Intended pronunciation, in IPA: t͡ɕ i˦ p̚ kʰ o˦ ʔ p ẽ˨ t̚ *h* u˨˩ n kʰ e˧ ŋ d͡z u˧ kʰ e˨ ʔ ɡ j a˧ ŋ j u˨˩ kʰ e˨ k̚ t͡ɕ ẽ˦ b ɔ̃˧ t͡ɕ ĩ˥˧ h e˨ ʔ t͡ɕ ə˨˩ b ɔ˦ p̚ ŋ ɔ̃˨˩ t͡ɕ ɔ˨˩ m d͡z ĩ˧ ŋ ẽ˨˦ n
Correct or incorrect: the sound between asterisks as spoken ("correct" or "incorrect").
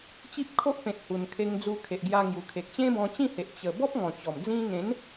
correct